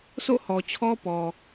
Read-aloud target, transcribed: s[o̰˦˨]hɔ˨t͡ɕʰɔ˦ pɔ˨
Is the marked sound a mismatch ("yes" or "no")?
no